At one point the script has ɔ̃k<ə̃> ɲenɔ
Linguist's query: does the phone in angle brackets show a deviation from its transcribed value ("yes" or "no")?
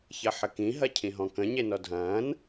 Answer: no